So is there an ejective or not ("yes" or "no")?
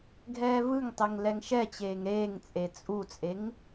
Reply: yes